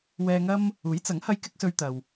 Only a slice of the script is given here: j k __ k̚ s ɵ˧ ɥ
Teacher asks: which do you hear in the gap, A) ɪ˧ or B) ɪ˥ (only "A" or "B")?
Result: B